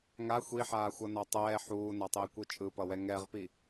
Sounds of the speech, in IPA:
ŋa xʷiħaːxʷʌna tˤɛː ħuːnatˤei̯kʷɯ t͡ʃʼɯpʌwɛ ŋɛʁpi

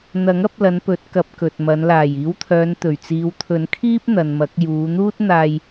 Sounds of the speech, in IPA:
n̪ɐ˨˥ŋɐ˨˥p̚lɐ˨˧n pɵ˨˥t̚kɐ˨˥p̚ kɵ˨t̚mɐ˨˧n laː˨˩jiː˨˥wt̪ʰœː˨˧nt̪ɵ˨˩ɥ t͡siː˨˧wt̪ʰɵ˨˥nkʰiː˥p̚n̪ɐ˨n mɐ˨˥k̚ juː˨˧ n̪uː˥t̚n̪aː˧j

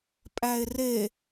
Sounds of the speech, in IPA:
pʼæe̯re

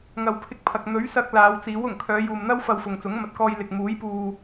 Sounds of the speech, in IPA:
ŋɐ˨wpʰɪ˧k̚pʰɐ˨k̚ n̪ɵ˨˥ɥ sɐ˧k̚ laː˨˧wt͡siː˨˥wʊ˨˩ŋ kʰœː˨˧juː˨m n̪ɐ˥wfɐ˧wfʊ˨ŋ t͡sʊ˨˥ŋmɐ˨t̚kɔː˧j lɪ˨k̚muː˨˥jpuː˧

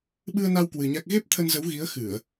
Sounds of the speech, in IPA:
ɓɨ˧ə̯na˧w kwɨ˧ɲa˦˥k̚ ɣe˦˥p̚t̪ʰə˧nzə˨˦wɣi˨˦ə̯ xɨ˧˩˨ə̯

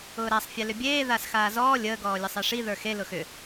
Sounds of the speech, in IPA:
ʊːɾasˤfʲɛlʏ bʲeː ðaːsxaːzɔː lʲəːɡɔːlʲə sˤeʂi ðə˞xe lʊxʏ

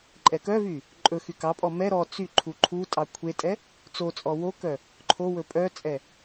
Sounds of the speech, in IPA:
ǃʼɛkœvy | ǃʼɵ xykɑpʼɔ mɛ ɾɔ t͡sy ǃʰuǃʰutʼɑ kʷʰetʼɛ | t͡sot͡sʼɔ wokœ | ǃʰo wɵpʼœt͡sʼɛ

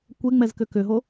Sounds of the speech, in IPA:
kʷeŋ͡mɛz kʏkʏɦo

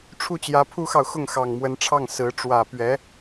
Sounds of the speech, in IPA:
ʈ͡ʂʰu˥˩t͡ɕjä˧˥pʰu˥xɑ˨ʊ̯ xʊ˥˩ŋxɑ˨˩ŋmwə˧˥nʈ͡ʂʰɑ˥˩ŋ sɹ̩˧˥ ʈ͡ʂwä˨˩pɥɛ˧˥

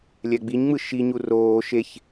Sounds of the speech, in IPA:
lʲɛɡ͡biɲŋ͡mɯ ʃiɲu roː ʃeç

